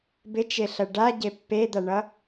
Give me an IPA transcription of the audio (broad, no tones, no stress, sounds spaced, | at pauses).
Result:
b ɪ t͡ʃ e ɬ ɐ ɖ a ɟ e pː e d̪ a ɳ ʌ